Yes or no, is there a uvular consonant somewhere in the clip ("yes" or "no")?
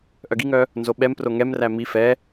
no